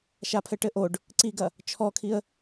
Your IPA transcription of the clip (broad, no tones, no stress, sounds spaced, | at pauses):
ʃ a pʰ ɘ ʈ ɘ ʔ o ɖ | ǀ i ɡ ɐ | t͡ʃʰ ɔ kʰ i ə̯